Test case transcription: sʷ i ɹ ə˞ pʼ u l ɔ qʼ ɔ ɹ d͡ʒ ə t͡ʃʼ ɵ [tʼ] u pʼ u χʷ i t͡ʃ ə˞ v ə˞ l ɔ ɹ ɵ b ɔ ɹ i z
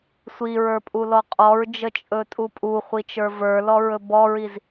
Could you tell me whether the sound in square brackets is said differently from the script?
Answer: no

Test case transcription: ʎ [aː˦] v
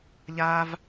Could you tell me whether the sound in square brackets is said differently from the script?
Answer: no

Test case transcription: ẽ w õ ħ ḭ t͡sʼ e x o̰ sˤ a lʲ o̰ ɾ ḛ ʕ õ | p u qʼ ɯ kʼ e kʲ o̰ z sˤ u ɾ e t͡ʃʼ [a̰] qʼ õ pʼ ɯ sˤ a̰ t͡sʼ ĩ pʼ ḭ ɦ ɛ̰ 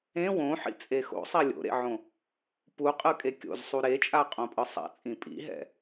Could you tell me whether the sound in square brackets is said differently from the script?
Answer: yes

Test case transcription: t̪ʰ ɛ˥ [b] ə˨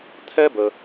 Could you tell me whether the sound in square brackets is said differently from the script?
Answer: no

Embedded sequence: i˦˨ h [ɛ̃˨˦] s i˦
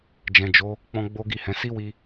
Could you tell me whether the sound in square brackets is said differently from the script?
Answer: no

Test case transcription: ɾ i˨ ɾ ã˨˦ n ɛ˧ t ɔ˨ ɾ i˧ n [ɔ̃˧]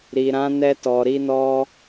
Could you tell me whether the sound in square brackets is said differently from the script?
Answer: yes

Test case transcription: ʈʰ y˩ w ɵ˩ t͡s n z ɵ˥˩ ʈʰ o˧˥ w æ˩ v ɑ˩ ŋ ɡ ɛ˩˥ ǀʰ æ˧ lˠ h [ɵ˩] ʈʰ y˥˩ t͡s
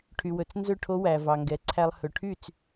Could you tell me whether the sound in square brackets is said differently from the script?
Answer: no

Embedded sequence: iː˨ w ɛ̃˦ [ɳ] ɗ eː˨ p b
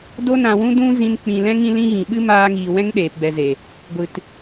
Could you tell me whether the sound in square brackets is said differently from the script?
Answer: yes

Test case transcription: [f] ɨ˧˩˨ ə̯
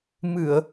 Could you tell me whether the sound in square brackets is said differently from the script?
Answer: yes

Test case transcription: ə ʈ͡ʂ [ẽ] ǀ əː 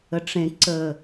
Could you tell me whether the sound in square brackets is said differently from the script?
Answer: no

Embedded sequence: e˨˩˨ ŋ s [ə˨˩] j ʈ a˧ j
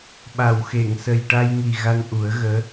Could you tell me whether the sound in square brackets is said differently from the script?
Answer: no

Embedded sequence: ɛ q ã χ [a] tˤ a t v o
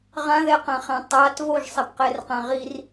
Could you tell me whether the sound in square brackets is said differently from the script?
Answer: yes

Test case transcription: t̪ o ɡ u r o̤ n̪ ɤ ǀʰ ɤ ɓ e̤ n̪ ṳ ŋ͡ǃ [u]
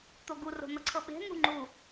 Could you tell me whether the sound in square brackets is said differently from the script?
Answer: no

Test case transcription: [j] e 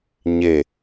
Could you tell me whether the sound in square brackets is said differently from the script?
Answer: yes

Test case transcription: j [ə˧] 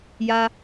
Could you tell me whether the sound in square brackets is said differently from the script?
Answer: yes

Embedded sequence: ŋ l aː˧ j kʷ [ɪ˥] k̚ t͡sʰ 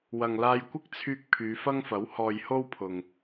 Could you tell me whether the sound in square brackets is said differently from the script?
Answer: no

